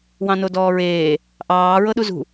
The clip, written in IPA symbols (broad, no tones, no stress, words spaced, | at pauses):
wɑ̃nodɔːɹeː | ʔɑː ɹɤɗuzṳ